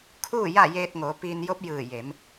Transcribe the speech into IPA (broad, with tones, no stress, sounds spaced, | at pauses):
kʰ uː˥˨ j a˥˨ j eː˧ t̚ ŋ oː˩˧ p iː˧ n j o˧˥ p̚ j ɯː˧˩ j e˩˧ m